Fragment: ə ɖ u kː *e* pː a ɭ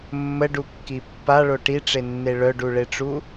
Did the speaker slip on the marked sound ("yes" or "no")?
yes